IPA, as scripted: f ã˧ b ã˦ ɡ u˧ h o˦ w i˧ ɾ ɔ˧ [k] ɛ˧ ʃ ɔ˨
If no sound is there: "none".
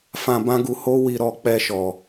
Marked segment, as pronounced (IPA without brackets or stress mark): k͡p